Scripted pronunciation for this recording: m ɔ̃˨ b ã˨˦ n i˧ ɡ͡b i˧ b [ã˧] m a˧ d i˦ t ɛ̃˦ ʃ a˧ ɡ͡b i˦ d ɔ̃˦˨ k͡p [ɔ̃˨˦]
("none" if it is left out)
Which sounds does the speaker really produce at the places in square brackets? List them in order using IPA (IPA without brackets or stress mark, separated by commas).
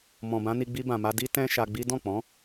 ã˨, ɔ̃˨˦